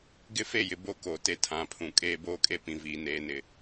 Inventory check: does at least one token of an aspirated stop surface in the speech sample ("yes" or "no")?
yes